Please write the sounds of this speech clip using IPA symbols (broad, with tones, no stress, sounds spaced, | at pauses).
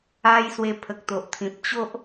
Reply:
a˧ j s w e˧ pʰ ə˨ k̚ t̪ o˨ ʔ t̪ʰ ĩ˨ p̚ t͡ɕ o˦ ʔ